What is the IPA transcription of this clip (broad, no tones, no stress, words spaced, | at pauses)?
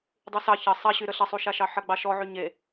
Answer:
dˤysɑ çɐ sˤɐɕyɾə ɬɐsˤuʃaʃɑ ħɐɡ͡bɑʃɔ ʕyɲe